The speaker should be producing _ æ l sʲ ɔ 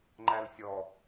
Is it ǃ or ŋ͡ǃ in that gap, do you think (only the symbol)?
ŋ͡ǃ